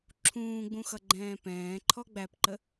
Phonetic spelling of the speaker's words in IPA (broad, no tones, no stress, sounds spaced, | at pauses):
ǁʰ ũː ɡ͡b ũ x ʌ ɡ͡ǃ ɛ̃ː p ɛ̃ː ǃʰ ɔ ɡ͡b æ p ǃ ə